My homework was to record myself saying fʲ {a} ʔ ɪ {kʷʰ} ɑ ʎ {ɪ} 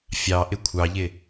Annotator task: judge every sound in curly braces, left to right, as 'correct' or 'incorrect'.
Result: incorrect: ɑ, correct, correct

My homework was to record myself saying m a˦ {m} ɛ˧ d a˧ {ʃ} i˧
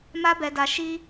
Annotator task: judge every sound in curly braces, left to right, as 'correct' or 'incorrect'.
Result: incorrect: b, correct

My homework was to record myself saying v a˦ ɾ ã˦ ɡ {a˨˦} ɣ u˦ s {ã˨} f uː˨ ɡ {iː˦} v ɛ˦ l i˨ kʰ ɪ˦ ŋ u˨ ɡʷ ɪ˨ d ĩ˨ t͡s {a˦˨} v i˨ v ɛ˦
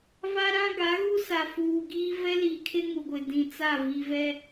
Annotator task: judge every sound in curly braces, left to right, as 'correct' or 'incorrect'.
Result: correct, incorrect: a˨, correct, correct

